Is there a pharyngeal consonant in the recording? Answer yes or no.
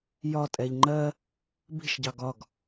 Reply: no